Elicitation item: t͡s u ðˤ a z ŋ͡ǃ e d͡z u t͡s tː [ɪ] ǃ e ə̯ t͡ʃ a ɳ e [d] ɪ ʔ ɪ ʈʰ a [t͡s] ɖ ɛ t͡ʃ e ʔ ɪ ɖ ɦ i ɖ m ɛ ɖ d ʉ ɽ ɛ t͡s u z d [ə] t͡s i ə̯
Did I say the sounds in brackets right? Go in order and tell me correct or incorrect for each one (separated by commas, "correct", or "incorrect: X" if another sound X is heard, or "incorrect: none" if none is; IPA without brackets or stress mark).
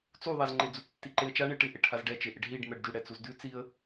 incorrect: i, incorrect: ʈ, incorrect: z, incorrect: ʉ